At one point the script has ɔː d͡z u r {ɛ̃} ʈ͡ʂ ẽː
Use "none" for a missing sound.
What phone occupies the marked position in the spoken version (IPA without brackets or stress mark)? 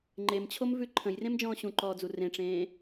ẽ